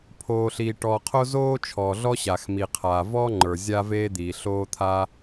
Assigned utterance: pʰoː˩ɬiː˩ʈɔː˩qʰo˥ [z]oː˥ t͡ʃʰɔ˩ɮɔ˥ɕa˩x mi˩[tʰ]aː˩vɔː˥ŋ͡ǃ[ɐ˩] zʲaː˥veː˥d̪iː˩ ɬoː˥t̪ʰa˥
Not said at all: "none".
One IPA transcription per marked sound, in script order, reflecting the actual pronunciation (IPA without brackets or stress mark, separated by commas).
z, qʰ, ə˞˩